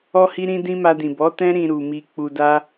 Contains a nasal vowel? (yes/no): yes